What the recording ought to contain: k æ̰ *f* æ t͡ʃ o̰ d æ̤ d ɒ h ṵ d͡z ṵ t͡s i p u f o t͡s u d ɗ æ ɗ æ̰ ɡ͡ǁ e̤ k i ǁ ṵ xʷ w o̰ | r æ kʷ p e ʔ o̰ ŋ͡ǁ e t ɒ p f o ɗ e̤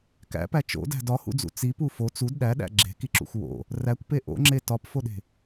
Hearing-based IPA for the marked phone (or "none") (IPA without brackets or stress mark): p